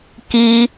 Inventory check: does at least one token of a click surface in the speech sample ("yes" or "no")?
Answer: no